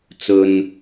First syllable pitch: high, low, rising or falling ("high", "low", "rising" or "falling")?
low